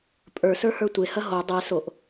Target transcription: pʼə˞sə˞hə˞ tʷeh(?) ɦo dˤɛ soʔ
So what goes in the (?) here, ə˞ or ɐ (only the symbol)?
ɐ